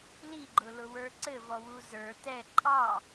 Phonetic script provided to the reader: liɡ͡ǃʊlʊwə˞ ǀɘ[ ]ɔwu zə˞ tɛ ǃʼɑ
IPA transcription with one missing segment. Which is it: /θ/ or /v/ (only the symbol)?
v